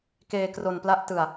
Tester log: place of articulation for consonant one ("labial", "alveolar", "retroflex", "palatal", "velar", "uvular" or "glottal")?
velar